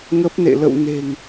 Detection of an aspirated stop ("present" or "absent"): absent